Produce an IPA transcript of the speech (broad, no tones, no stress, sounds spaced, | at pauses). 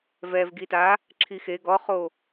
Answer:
v ɛ v ɡ i t a | ǁʰ i x e ɡ ɔ χ o